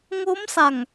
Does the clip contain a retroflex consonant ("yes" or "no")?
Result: no